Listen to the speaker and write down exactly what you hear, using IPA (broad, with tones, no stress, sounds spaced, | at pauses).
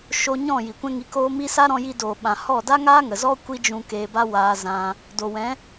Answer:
ʃ o˧ ɲ ɔ̃˦˨ j i˨ kʷ ɛ̃˦ ŋ i˧ k oː˦ m i˦ s a˦ ɾ ɔ̃˧ j i˧ d oː˨ ɓ ã˨ h ɔ˦˨ d a˦ ŋ aː˦ ŋ ə˨ z ɔ˦ kʷ i˦ d͡ʒ ũ˧ k eː˧ b a˦ w aː˧ z ã˧ | d o˨ w ɛ̃˨˦